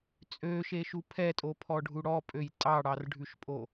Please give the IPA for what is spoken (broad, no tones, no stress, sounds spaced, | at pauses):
t͡sʼ ø ʃ e ʃ u pʰ ɛ tʼ o pʰ ɔ ɖʱ u ɽ ɔ pʼ ø j tʼ ɑ ɽ ɑ r ɖʱ ʉ ʃ pʼ o